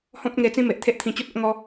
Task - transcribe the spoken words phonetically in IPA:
h ɔ̃˦ p̚ ŋ e˧ t͡s ĩ˦ m e˨ ʔ t̪ʰ e˦ ʔ t̪ʰ ĩ˧ t͡ɕ u˦ t̚ o˦ ʔ ŋ ɔ˦

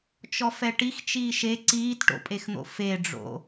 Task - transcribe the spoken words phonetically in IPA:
t͡ʃ ɔ f ɛ ʈ i x t͡ʃ iː ʃ e ǀ iː t ʈ o̰ pʼ e x n̪ o̰ f e ɖ͡ʐ o̰

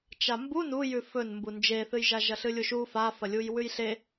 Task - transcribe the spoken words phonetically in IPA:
t͡ʃ a m b u n u j ʉ f ɵ n m b u n d͡ʒ e θ ɨ j ʒ a ʒ ɐ ɬ ɨ lʲ u ʃ u f a f ɐ lʲ u j w ʉ j ɬ e

